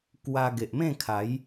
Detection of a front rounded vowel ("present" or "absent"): absent